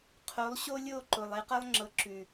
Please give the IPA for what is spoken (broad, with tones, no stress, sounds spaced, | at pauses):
qʰ o˨˦ lˠ ɕ o˦ lʲ o˦˨ ǃ ʊ˨ lˠ e˦ q ʌ˦ lˠ ŋ͡ǁ ɤ˨ ǁ ʉ˨